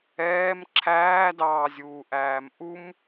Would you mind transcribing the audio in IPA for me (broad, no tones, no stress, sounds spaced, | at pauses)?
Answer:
ɛː m ǁʰ æː d ɑː zʲ uː ʔ æː m ʔ u m